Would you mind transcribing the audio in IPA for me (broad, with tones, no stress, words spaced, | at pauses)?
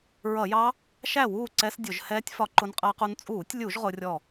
ɹʌ˧˩˧jɑ˦˥ | ʃæ˥˩wuː˥˩ ǀɛ˦˥s dʲʊ˧˩˧ʒ hɛː˦˥tʲ fɒ˦˥ǃʊ˦˥nqʼɜ˦˥qu˦˥n t͡sʼuː˧˩˧tʲlʲu˧˩˧ʒ ʁʊ˦˥rʲɔ˥˩